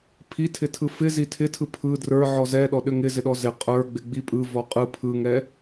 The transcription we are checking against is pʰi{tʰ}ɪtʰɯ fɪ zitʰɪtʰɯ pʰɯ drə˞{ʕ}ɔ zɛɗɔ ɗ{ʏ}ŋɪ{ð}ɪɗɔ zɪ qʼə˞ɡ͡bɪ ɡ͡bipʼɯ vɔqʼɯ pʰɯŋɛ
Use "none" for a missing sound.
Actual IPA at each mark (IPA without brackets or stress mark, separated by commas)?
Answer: tʰ, ʕ, ʏ, z